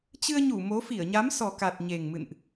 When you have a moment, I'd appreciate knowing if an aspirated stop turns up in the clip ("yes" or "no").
no